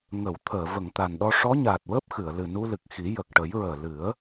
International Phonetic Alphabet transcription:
ŋ ə˨˩˨ w t̪ʰ əː˨˩˨ v ə˨˩˨ ŋ t̪ a˨˩ n ɗ ɔ˧ ʂ ɔ˧˥ ɲ aː˨˩ t̚ w əː˦˥ p̚ x ɨ˨˩˨ ə̯ l ɨ˨˩ n u˧ l ɨ˨˩ k̚ x i˨˩˦ j ə˨˩ k̚ ʈ ə˨˩˦ j ɹ əː˨˩ l ɨ˨˩˦ ə̯

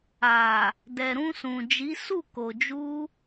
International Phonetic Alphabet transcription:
a˨ | d ɛ˨ ɾ ũ˧ s ũ˨ d͡ʒ i˨˦ s u˦˨ k o˨ d͡ʒ u˧

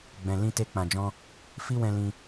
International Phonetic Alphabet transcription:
ɡ͡b ɛ̃˨ l ĩ˧ t e˧ k͡p ã˨ d͡ʒ ɔ̃˧ | f i˦ w ɛ̃˧ l ĩ˧

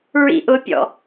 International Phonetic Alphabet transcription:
ɹ ḭ ʔ ʊ pʲ ɔ̰

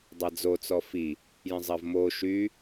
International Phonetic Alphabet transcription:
dˤ a d͡z o t͡s ɔ f i | j ə̃ zˤ ɐ v m o ʃ y

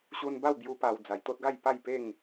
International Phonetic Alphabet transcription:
ɕ u˧ n b a˥˧ w b j u˧ p a˨˩ w d͡z a˨˩ j t̪ o˦ t̚ ɡ a˥˧ j p a˥˧ j p e˥˧ ŋ

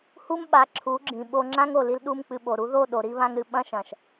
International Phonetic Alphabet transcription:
h u˦ m ɓ a˨˦ ǁʰ u˨˦ ɡ͡ǁ ĩ˨ ɓ o˧ ŋ͡ǁ ã˦ ŋ o˨ l i˧ l ɗ u˦ m k͡p ɨ˧ ɓ o˨ ɾ u˧ ð o˦˨ ɗ o˨ ɾ i˧ β ã˧ ŋ ɾ ɨ˨ ɓ ɐ̃˦ ʃ ɐ̃˨ ʃ

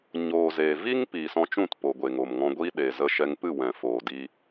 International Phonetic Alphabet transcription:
ɲ oː˨ z eː˨ v i˦ ŋ p iː˨ s ɔ̃˧ t͡ʃ ũ˦˨ t p o˨ ɡʷ e˨ ŋ o˨ m ŋ ɔ̃˧ ɡʷ iː˦ ɗ eː˨ z ə˧ ʃ ɛ˧ ŋ p ɨ˦˨ w ɛ̃˨ f oː˨ d iː˧

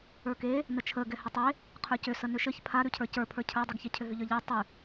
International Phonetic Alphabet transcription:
ə˞ k e | n ə t͡ʃʰ ə ɡ ɛ h ʏ tˤ e | qʰ ə˞ c ʏ s ə n ʏ ʃ ɘ ç pʰ a ɾ ʉ cʰ ə˞ c ə˞ pʰ ə˞ cʰ ə˞ dˤ ʉ ɡ ç ɛ cʰ ʏ ɦ ʏ ʎ ə˞ ʎ ɛ tˤ ʉ

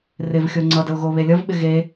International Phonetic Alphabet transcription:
r ɪ v xʲ o ŋ͡ǀ ʌ d ə ʊ̯ ɣ o β e lʲ ʌ v ɓ ɪ ɣ e

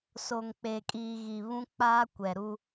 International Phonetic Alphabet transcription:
s o˨ ŋ k͡p eː˨ kʼ iː˨ ɣ i˨ β ũ˦ k͡p aː˦ kʷ ɛ˨ ɾ u˦

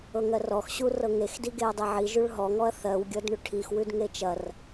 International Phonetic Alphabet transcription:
ɤ ŋ ɜ r ɔ x ɕ u r ɤ ŋ e x d i ɡ e ɐ̯ dˤ e ʕ i ʒ ʉ ɭ ɦ ɔ ŋ ɔ ɐ̯ θ ɜ w ɡʲ ɤ d ɳ ʉ ʈʰ i x w ʉ d ŋ e t͡ʃ ɐ r

